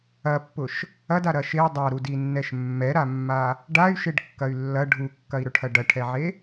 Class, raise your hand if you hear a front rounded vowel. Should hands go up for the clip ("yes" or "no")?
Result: yes